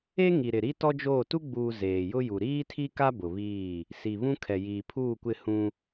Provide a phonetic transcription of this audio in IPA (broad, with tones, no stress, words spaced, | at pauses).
e˦ŋi˨ ɾɪ˨ɾi˦ tɔ˦d͡ʒoː˦˨ tu˦ɡ͡buː˨ zeː˨jʊ˦ju˨ ɾiː˦tʰi˦ka˦ bʊ˨βiː˦˨ | si˨βũ˦ kʰɛ˨jiː˨pʰuː˦˨kʷɪ˦˨ hũ˦